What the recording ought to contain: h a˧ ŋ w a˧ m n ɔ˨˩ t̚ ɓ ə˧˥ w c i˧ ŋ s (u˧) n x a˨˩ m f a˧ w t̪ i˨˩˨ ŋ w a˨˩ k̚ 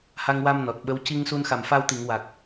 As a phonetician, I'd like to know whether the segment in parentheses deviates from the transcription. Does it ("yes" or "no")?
no